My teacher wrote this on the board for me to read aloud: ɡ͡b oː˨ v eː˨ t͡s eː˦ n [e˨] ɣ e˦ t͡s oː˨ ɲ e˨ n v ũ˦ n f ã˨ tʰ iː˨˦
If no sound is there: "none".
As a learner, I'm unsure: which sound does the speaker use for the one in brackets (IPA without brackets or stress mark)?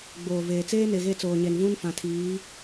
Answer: e˨